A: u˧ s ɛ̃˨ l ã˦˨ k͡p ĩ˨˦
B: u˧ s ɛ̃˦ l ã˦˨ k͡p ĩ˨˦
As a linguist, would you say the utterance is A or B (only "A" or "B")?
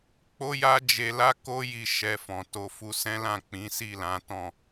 B